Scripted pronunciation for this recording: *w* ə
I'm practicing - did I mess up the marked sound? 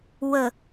no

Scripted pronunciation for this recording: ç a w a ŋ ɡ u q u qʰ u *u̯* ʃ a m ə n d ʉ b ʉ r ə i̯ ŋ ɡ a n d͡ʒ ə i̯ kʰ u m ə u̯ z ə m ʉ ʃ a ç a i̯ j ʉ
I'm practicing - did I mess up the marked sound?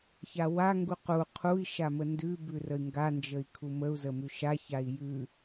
yes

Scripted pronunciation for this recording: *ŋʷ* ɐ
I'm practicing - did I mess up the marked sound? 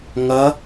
yes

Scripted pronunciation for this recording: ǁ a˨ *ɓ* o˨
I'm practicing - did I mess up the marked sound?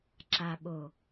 no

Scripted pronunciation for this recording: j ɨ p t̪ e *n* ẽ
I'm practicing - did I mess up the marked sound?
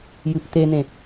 no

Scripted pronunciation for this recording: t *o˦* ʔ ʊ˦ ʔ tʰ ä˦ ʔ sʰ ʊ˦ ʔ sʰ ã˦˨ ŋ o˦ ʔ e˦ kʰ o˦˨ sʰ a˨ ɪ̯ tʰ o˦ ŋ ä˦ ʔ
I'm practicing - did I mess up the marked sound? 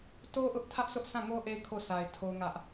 no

